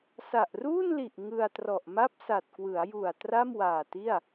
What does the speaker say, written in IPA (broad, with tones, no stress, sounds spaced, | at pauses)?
s a˨˩ ʔ r uː˥˩ n l i˨˩ ʔ ŋ ɯ˧ a̯ t r ɔ˨˩ ʔ m a˥˩ p̚ s a˨˩ t̚ k w ɯ˩˦ a̯ j u˨˩ a̯ t r a˥˩ m w aː˨˩ t i˥˩ a̯